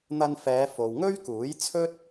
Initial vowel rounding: unrounded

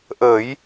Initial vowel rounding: unrounded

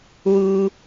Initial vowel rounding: rounded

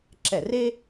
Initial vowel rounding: unrounded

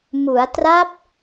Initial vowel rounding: rounded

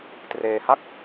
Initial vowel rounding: unrounded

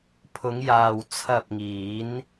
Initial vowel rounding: rounded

